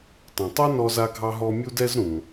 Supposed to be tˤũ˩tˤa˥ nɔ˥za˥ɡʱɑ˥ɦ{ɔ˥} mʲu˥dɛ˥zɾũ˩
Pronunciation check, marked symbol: correct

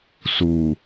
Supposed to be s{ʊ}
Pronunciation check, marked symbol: incorrect: u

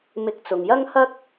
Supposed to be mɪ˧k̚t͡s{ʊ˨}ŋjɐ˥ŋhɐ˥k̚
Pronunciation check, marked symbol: correct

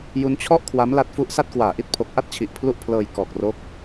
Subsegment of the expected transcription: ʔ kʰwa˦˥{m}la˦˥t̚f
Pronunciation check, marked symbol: correct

